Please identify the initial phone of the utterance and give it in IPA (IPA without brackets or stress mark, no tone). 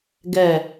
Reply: ɡ